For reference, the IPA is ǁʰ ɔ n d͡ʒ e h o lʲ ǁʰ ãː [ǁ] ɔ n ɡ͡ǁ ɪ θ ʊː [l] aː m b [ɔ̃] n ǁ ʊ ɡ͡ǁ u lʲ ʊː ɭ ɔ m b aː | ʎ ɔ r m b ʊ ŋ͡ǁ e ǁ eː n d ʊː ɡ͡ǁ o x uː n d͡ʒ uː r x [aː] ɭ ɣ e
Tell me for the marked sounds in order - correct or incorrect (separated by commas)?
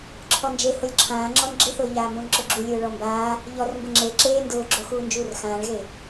incorrect, incorrect, correct, incorrect